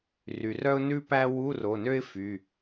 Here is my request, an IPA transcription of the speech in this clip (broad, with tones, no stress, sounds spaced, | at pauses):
r y˩ r œ˥ ʊ̯ n ʉ˥ p æ˥ w u˧˥˧ r o˩˧˩ n ø˥ ɪ̯ f y˩˧˩